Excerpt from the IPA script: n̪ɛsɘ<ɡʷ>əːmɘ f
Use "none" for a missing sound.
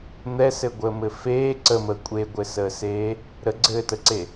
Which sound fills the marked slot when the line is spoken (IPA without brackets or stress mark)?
ɡʷ